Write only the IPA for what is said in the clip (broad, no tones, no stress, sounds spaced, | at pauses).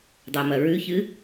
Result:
dˤ a m ɐ ɹ ʉ ç ɨ